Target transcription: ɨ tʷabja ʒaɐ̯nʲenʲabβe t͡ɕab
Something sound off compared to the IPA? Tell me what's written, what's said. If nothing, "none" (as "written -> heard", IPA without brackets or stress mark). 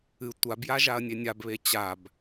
none